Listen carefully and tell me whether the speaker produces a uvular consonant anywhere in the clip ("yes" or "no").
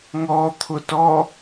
no